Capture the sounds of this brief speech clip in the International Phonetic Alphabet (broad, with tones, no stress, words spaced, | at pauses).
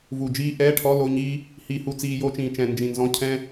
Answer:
vu˧˩d͡ʒiː˥ ʔɛː˧˥˧ʈʰɔ˧˥˧ lo˧˥˧ɲiː˥ | hiː˧hu˧t͡siː˧ jo˥t͡ʃĩː˧ t͡ʃɛ̃˧˩nd͡ʒĩ˧˩nzɔ̃˧˥˧ cʰɛ̃˥